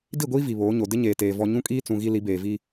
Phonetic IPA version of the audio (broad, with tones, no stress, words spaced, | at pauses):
di˦˨ɡʷiː˦ vi˨βoː˨˦ɲo˨ dɪ˦ɲeː˨teː˨ vɔ˦ ɲũ˦kʼiː˦t͡sũ˨ ɣi˦ li˨˦beː˨ vi˦